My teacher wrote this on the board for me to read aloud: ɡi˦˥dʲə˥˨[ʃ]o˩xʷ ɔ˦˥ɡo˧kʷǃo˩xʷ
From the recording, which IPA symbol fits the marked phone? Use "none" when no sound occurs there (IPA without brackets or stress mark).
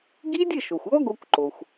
ʃ